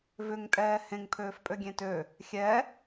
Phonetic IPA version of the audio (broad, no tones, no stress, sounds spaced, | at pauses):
v ʏ ŋ tʼ ɛː h ẽ ŋ pʰ øː f pʼ ø ɡʲ ẽ t ø | xʲ ɛ